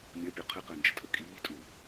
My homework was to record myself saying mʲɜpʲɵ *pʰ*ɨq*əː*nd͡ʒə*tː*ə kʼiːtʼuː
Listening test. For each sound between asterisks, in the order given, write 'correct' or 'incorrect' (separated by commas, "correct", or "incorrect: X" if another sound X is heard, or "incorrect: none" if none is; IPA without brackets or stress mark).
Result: incorrect: qʰ, correct, incorrect: tʼ